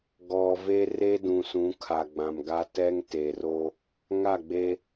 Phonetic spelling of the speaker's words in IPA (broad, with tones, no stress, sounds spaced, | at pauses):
ɡ ɔ˨ v e˦ r e˦ d ũ˨ s ũ˨˦ kʰ a˨ ɡ͡b ã˨ m ɡ a˦ t ɛ˦ ŋ t e˨ r o˦ | ŋ a˦˨ ɡ͡b e˦